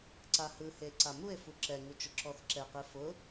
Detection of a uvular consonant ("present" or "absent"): present